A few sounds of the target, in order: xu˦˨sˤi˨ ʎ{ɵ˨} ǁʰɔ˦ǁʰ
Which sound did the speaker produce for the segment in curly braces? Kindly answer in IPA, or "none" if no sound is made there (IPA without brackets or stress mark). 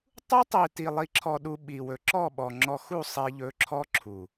ɵ˨˦